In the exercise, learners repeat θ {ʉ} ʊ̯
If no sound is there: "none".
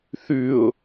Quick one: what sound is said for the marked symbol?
ʉ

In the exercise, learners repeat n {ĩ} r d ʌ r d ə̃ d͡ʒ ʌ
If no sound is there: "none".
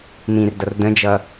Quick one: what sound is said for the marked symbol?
ĩ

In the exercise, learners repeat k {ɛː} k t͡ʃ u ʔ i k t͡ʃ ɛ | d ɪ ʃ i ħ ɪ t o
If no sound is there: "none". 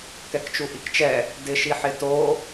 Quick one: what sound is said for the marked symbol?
ɛ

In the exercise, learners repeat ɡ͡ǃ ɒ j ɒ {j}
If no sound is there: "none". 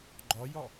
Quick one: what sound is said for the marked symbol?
none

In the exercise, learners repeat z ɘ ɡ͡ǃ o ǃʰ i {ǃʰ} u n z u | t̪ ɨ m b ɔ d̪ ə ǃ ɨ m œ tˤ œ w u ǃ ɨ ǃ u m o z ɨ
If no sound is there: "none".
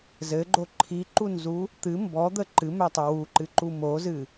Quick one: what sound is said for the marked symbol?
ǃ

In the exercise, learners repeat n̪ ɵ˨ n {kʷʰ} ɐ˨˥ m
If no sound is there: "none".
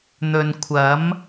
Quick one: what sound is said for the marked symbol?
kʷʰ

